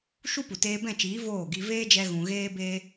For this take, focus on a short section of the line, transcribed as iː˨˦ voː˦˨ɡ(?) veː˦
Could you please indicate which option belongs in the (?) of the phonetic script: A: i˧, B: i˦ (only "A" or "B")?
A